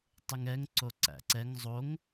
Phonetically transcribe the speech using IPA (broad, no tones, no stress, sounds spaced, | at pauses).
tˤ ɨ ŋ ɛ ŋ ǀ o ǀ æ̰ ǀ ɛ ŋ zˤ o ŋ